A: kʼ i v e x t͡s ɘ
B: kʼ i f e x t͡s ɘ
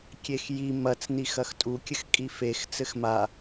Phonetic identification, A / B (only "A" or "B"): B